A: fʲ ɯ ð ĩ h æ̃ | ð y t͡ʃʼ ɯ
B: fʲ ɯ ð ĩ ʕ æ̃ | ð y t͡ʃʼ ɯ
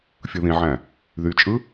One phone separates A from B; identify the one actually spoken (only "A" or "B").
B